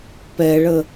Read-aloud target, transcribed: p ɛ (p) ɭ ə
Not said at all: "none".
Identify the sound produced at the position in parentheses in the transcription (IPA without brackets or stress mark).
none